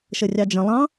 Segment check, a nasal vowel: present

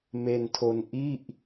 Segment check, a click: absent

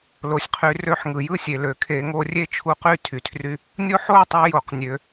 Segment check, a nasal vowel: absent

